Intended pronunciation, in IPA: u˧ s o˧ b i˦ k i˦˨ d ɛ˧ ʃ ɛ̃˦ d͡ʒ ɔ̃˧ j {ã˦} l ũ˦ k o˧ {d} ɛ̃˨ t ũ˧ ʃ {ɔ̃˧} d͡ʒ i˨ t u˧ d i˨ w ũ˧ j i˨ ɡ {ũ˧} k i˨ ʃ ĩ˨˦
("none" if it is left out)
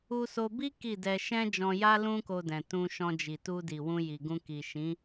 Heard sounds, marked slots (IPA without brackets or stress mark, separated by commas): a˦, d, ɔ̃˧, ũ˧